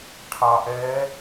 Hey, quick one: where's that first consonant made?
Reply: retroflex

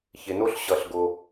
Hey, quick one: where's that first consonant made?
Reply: palate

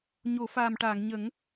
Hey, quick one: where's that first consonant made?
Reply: palate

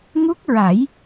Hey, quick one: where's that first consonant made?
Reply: velum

